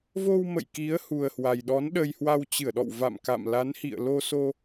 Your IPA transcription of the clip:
vo˧wmə̰˧˨j ki˨˦ə̯hu˨˩ə̯hwa˨˩jɗɔ˨˦n ɗə˧jhwa˧wt͡ɕɨ˧˩ə̯ɗɔ̰˧˨w va̰˧˨mka̰˧˨mla˨˦n hḭ˧˨ə̯lo˧so˧

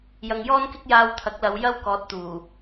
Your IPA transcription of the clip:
jɐ˧ŋjɔː˥nkɪ˥k̚ jaː˧wt̪ʰɐ˨˥k̚lɐ˨˧w jɐ˥w kɔː˨˥t̚t̪uː˨˩

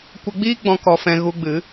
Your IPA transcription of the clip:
kʷə˧ɡ͡biː˦ɡ͡bɔ̃˧ kɔ˧fɛ̃˧ ɣu˧ɡ͡bɨ˨˦

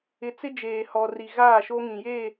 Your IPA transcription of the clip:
ɪ˨t͡sɪ˦ d͡ʒeː˨hɔ˨ri˨ ɣaː˦˨ʃo˦ŋĩ˨je˦˨

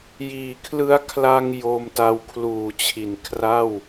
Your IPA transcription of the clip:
jiː˩˦kʰlɯ˦˥a̯ kʰla˧ŋ jo˧mta˧w kʰluː˨˩t͡ɕʰi˩˦nkʰra˥˩w

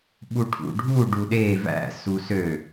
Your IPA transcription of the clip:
ɓuʈʰṵɖʱu ɖuɗe væ̰ susø

